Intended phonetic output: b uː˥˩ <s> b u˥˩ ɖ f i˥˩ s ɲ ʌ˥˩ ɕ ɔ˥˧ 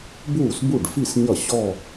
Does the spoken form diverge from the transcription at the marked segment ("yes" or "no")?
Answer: no